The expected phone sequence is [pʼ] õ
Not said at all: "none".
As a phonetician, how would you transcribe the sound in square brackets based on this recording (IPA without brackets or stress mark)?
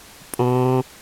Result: pʼ